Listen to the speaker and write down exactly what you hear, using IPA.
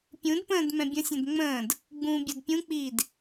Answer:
pʲ ũ d p ə̃ː d m ɛ̃ bʲ ə̃ sʲ ɛ̃ d ŋ͡m ə̃ː d | ɡ͡b ũː bʲ o d pʲ ũ k͡p iː d

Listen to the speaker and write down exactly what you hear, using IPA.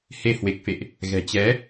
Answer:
h e˨˦ h w e˨˩ k̚ f ḛ˧˨ ʔ | ɣ ɛ̤˨˩ t͡ɕ ɛ˨˦

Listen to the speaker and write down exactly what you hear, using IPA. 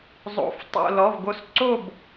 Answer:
zˤ o̰˧˥˧ f tˤ o̰˥˧ l ɔ˧˥˧ v ɡ o˥˧ s ǀ o˥˧ b

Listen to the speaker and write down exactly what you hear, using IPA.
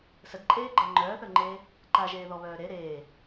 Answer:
s ə d ǃʼ eː ɡ͡ǃ əː ŋ͡ǃ œː θ œ ŋ͡ǃ eː | ǃ a ʒ eː ð ɔ β œː ɾ e ɾ eː

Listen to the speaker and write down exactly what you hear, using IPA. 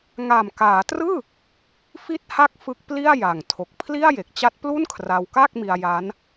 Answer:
ŋ a˨˩ m k aː˩˦ t r ɯː˥˩ | f i˥˩ t̚ h a˥˩ k̚ f ɯ˦˥ k̚ p l i˥˩ a̯ j a˨˩ ŋ tʰ o˨˩ k̚ pʰ l i˥˩ a̯ j e˨˩ k̚ t͡ɕ a˦˥ t̚ p l u˥˩ n kʰ r a˧ w k aː˥˩ k̚ m i˧ a̯ j aː˦˥ n

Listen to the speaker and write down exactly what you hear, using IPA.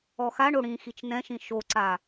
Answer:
ɔ x a ɳ o ɽ ĩ x i t͡ʃ n ɛ̃ ʃ ĩ ʃ o ǀ a

